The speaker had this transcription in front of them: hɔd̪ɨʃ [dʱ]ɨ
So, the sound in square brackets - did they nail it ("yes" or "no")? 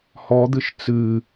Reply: no